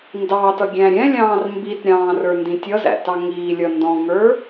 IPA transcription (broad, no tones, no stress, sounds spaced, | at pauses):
n d ɑ t ʌ ɡʲ æ̃ ɾʲ ɛ̃ lʲ ɑ̃ː r m b i t ɾʲ ɑ̃ː r ə˞ n d ĩ tʲ ʌ z æ̰ t ɑ ŋ iː lʲ ʌ n d ɔ̃ ŋ ə˞